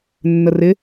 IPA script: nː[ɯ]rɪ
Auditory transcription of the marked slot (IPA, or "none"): ə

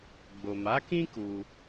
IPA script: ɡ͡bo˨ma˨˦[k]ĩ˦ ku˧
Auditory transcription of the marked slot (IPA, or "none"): k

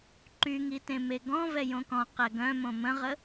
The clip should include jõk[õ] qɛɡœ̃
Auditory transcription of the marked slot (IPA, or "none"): ɔ̃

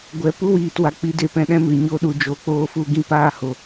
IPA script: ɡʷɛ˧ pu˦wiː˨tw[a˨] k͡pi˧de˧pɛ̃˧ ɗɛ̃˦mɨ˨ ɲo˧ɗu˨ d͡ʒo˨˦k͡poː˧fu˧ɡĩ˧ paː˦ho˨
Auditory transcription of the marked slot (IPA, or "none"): a˨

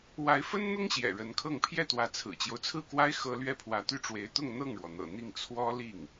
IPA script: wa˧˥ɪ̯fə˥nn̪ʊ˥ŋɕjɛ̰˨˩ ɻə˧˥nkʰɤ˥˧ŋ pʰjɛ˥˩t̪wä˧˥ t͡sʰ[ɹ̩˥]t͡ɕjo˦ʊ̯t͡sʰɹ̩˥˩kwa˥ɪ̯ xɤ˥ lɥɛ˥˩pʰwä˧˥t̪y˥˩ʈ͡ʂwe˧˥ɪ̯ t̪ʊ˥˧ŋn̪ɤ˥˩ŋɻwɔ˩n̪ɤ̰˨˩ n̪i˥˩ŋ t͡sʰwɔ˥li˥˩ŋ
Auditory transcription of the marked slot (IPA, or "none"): ɹ̩˨˩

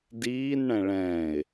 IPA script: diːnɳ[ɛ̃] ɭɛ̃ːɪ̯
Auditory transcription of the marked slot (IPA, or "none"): ɛ̃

